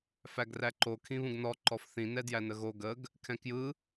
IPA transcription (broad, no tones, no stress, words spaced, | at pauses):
fæɡræǃo kʰĩβũɡnɔ ǃɔfθĩ nɛdjænəɣo ɡəɡ | kʰɛ̃kjɯ